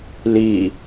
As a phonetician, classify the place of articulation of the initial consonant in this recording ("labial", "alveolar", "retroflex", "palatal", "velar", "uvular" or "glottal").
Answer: alveolar